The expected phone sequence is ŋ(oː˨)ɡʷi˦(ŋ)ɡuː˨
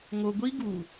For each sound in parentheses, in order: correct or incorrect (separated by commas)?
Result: incorrect, incorrect